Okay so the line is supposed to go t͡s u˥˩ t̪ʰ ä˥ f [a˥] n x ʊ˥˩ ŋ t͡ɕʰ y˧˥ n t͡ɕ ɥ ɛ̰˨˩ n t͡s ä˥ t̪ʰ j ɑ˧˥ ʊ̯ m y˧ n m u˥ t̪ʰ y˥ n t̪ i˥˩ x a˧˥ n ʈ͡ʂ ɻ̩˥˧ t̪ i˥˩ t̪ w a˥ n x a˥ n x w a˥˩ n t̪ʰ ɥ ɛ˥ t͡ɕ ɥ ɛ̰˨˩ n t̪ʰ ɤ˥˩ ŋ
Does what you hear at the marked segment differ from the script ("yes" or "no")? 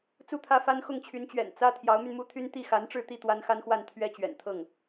no